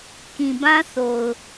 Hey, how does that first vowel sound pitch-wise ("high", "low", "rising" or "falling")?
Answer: low